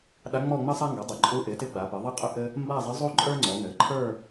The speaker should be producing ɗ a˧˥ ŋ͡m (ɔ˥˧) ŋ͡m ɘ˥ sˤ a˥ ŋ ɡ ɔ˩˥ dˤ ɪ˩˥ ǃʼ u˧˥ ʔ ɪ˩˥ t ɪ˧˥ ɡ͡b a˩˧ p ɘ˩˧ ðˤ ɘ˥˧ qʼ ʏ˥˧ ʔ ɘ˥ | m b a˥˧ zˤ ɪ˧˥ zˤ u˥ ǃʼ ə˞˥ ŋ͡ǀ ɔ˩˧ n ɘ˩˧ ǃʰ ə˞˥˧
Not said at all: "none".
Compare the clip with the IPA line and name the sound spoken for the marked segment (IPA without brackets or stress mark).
ɔ˥˧